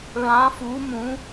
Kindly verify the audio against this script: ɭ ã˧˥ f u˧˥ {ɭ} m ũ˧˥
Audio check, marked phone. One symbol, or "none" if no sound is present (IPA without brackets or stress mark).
none